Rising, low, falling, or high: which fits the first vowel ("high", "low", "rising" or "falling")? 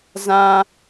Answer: high